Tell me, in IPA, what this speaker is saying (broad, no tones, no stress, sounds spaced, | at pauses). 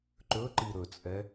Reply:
ǃ ɵ ǃ i ɾ ɵ t͡sʼ ɛ